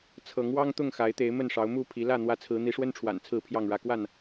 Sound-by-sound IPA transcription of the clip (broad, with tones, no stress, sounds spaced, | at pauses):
t͡sʰ ɤ˨˦ ŋ w ɑ˦ ŋ t̪ ʊ˥˨ ŋ x a˨˦ ɪ̯ t̪ e˨˦ ɪ̯ m ə˥˨ n ʂ ɑ˨˦ ʊ̯ m u˥˨ pʰ i˨˦ l ä˥˨ n̪ w ä˦ t͡sʰ ɹ̩˨˦ n̪ i˨˦ ʂ w ə˦ n ʈ͡ʂʰ w a̰˨˩ n t͡sʰ ɹ̩˥˨ pʰ j ɑ˥˨ ŋ ɻ ä˦ k w a˥˨ n